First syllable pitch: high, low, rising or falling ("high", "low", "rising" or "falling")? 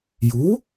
rising